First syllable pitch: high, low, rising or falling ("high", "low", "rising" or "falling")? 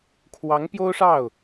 rising